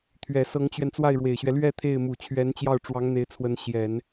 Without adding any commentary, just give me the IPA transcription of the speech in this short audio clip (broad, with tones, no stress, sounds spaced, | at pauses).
t̪ʰ ɥ ɛ˨˩ s ɤ˧˥ ŋ t͡ɕ ɥ ɛ˧ n t͡s w a˥˩ ɪ̯ ɻ w e˨˩ ɪ̯ ɕ ɥ ɛ˦ l ɥ ɛ˥˧ t̪ʰ e˥˩ ɪ̯ m u˨˩ t͡ɕʰ ɥ ɛ˧˥ n t͡ɕ j ɑ˥˩ ʊ̯ ʈ͡ʂ w ɑ˧˥ ŋ n̪ e˧˥ ɪ̯ t͡sʰ w ə˧˥ n ɕ j ɛ˨˩˦ n